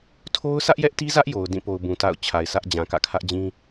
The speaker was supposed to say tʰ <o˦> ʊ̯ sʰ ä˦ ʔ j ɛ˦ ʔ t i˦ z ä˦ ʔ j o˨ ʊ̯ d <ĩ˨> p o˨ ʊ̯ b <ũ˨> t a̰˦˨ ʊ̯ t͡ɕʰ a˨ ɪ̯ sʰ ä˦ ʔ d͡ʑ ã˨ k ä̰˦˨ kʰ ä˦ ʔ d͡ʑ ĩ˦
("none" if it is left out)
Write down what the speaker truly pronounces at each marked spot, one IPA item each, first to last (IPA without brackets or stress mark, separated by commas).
o˦, ĩ˦˨, ũ˨